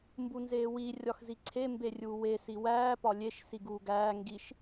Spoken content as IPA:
m b u n z eː w i rʲ ɒ x z i ǀʰ e m b e rʲ uː w e s i w æː p ɒ lʲ e ʃ s i ɡ uː ɡ æː ŋ ɡ i ʃ

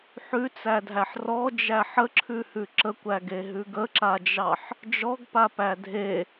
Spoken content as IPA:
ħ ʉ t͡s æ dʱ æ ħ r ɔ d͡ʒ æ ħ ə ǁʰ ʉ h ʉ ǁ ə kʷ æ ɡ e ɦ ʉ ɡ ə ǁ a d͡ʒ ɑ ħ | d͡ʒ ɔ ɡ p a p æ dʱ e

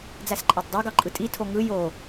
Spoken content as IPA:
d͡z æ s ǃʼ ɑ tˤ dˤ æ ɡ ɑ ǃʼ ɯ tʼ i tʰ o ŋ ɯ j o

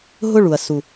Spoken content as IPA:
ɦ ʊ˦˨ ɭ u˨ ɐ̯ s u˨

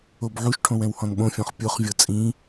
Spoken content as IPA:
o b ʕ u ʃ ʈʰ õ w ɛ̃ w h ɔ̃ n ɓ õ fʲ ɔ̃ χ pʲ o χ vʲ ɤ t͡sʼ ĩ

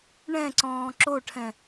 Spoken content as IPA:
ɳ ɛ̃ ǀ ɔ̃ː ǁ o ʈʰ ɛ̃

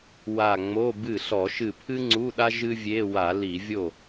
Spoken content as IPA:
w a˧˩ ŋ͡m o˧˥˧ b ɨ˥˩ ɬ ɔ˧˩˧ ʃ ɨ˧˩ pʰ ɨ˥ ŋ͡ǀ u˧˥˧ ɗ a˥ ʒ ɨ˥ vʲ e˧˥˧ w a˧˩˧ l i˧˩˧ vʲ o˥˩

